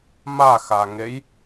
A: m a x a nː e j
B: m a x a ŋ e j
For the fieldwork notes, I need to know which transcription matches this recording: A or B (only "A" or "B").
B